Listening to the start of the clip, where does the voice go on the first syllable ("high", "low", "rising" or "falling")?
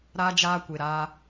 high